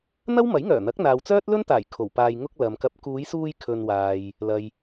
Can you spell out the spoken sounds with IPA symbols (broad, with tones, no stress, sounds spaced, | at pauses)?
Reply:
n̪ ɐ˥ w m ɐ˨˥ j ŋ œː˨˩ n̪ ɐ˨˥ k̚ n̪ aː˨ w t͡s œː˥ t̚ l ɵ˥ n t̪ aː˨˩ j kʰ o˨˩ w p aː˧ j ŋ ʊ˥ k̚ l ɐ˨ m k ɐ˨˥ p̚ k uː˨˧ j s uː˧ j kʰ ɵ˧ n w aː˨ j | l ɐ˨ j